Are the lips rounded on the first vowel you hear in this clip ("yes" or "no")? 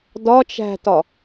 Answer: yes